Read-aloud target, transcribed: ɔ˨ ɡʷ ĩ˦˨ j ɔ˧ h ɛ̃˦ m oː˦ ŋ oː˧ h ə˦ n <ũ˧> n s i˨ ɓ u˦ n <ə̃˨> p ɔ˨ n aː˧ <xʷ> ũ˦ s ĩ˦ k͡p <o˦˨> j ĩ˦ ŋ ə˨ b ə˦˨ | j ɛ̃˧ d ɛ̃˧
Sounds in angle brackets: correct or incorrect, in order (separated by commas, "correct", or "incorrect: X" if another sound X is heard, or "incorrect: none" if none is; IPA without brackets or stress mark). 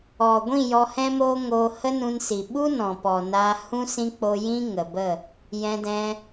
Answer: correct, incorrect: ɔ̃˨, incorrect: h, incorrect: o˧